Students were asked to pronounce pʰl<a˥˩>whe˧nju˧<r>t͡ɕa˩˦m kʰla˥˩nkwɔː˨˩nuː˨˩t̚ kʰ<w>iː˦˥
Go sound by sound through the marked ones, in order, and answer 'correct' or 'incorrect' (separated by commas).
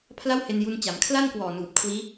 correct, incorrect, correct